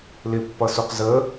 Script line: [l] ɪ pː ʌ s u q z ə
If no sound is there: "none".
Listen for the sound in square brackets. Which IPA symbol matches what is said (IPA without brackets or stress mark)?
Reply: l